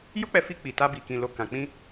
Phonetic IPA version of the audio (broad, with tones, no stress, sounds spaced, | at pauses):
j o˦ k͡p ɛ˧ f i˧ k͡p i˨ t a˧ b i˨ k ĩ˨ l o˨ k ã˨ k͡p ĩ˧